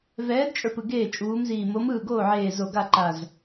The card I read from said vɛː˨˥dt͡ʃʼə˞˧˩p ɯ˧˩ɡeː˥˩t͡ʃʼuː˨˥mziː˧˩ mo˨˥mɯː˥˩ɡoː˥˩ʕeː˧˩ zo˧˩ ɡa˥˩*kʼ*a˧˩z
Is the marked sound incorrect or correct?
incorrect: ǃ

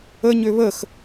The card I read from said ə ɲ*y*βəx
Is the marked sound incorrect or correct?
incorrect: ø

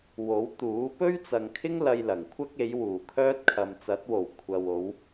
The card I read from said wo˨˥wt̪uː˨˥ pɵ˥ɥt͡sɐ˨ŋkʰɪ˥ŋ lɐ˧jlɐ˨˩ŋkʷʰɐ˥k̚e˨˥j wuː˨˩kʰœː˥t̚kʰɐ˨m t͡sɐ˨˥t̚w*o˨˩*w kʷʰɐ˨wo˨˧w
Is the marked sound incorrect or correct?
correct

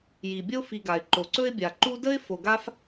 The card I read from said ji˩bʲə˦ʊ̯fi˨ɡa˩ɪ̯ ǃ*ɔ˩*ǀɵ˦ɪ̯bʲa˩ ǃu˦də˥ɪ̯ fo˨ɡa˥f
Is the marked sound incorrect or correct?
incorrect: o˩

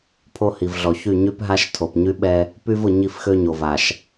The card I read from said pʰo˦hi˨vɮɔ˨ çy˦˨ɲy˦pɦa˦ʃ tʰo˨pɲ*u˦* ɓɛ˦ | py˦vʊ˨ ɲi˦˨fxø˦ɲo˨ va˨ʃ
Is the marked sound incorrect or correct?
incorrect: y˦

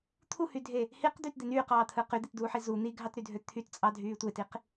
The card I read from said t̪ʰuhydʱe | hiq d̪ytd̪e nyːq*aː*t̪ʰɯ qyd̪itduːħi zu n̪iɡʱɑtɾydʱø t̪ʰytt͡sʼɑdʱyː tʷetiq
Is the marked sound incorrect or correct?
incorrect: ɑː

